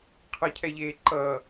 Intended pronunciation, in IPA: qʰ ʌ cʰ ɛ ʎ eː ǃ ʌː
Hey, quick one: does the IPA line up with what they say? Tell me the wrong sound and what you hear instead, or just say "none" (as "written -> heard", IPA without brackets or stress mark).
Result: none